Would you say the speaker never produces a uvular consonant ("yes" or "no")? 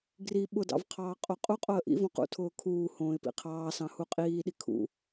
no